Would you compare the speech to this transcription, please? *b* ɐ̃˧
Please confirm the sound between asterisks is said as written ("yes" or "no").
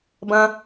yes